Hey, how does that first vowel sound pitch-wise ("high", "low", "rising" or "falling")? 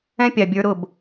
high